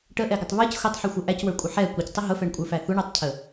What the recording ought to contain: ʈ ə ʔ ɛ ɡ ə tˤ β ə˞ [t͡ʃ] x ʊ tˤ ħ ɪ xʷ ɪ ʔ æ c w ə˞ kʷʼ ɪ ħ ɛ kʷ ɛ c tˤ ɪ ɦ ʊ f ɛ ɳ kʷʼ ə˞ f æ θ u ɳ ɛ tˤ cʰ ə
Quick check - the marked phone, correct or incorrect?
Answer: incorrect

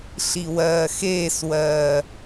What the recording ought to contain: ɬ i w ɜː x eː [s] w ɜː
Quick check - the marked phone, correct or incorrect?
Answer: correct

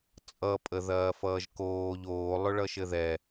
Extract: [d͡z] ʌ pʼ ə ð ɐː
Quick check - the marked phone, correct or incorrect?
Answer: incorrect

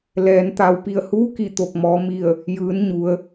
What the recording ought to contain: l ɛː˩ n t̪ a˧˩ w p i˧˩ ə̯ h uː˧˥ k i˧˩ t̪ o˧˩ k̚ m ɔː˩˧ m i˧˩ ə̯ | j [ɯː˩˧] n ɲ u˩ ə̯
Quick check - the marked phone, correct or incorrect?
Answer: correct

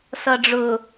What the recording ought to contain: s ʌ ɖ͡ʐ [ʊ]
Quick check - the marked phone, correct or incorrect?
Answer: correct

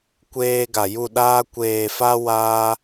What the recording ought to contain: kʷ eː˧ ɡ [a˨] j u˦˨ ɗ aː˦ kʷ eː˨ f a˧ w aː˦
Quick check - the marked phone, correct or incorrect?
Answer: correct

